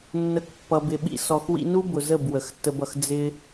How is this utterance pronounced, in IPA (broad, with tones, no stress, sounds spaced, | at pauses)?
nː ə˨˦ k pː ʌ˨ b ɪ˨ ɓ ḭ˦ s ɔ˨ x w ḭ˧ n u˦ b ʊ˨ z ə˦˨ b w ə˨ x tː ə˧ b ʌ˨ x d͡z ɪ˦